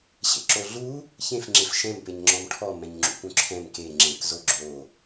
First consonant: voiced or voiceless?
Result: voiceless